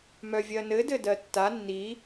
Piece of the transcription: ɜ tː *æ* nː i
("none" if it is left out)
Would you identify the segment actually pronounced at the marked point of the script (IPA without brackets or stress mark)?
a